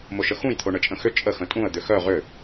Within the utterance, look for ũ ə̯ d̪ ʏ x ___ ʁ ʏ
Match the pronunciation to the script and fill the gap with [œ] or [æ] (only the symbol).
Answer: œ